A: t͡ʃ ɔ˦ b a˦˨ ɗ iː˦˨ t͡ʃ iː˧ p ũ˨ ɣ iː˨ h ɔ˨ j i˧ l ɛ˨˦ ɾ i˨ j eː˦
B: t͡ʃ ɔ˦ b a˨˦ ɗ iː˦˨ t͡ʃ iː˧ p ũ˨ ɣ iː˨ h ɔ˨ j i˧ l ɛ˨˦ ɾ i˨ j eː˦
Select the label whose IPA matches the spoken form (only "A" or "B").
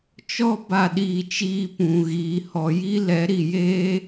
A